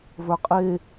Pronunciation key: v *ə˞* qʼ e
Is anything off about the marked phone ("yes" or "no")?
no